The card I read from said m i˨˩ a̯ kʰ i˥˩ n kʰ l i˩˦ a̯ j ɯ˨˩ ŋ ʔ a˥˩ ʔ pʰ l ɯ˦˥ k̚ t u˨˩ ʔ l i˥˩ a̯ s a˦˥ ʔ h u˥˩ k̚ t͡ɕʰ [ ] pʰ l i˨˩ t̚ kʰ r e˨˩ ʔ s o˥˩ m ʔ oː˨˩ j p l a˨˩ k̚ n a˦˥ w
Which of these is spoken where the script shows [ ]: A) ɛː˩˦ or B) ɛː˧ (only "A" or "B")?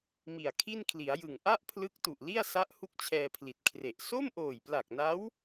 B